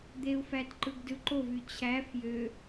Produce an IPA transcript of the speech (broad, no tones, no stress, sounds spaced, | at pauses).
d̪ e u̯ f æ t ǃ ɯ ɡ d ɯ ǃ o v y t͡ɕʰ æ f j ø